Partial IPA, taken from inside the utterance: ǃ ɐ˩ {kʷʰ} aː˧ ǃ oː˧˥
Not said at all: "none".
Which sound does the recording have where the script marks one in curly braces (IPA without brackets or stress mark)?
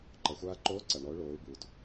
xʷ